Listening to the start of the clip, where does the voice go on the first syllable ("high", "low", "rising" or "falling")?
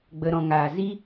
low